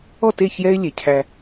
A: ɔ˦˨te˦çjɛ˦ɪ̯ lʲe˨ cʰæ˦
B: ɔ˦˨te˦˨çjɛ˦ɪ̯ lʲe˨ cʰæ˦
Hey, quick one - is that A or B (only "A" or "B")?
B